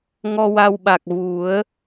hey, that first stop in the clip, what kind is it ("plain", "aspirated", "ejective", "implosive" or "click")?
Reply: implosive